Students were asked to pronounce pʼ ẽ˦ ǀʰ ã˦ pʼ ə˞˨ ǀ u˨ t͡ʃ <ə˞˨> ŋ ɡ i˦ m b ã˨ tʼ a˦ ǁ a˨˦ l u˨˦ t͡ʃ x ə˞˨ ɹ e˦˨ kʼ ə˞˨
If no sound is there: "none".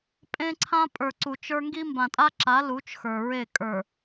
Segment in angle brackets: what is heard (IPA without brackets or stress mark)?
ə˞˦